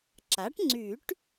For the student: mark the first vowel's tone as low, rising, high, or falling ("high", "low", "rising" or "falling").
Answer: rising